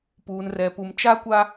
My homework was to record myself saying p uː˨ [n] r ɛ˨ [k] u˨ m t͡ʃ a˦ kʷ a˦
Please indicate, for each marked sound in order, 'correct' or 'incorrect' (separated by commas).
correct, incorrect